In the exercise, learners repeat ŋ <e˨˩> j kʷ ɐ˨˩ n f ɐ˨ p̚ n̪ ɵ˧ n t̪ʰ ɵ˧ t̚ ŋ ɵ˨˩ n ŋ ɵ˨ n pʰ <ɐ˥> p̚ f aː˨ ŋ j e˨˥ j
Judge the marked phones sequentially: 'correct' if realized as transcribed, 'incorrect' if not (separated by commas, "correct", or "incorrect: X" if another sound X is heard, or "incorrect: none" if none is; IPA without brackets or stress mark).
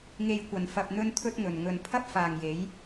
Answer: incorrect: e˨, correct